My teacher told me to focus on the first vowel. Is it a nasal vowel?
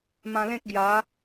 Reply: yes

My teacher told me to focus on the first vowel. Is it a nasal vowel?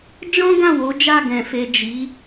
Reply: yes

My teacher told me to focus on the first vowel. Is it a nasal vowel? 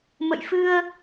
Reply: no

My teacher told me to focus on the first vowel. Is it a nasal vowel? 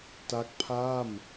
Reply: no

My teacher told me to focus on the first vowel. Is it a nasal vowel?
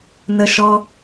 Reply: no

